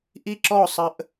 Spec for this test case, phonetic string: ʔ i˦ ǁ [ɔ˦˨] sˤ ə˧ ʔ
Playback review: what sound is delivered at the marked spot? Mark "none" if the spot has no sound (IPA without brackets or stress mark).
ɔ˦˨